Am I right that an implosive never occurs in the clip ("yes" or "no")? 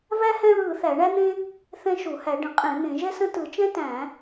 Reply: yes